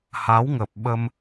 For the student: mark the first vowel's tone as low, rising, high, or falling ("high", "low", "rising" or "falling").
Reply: rising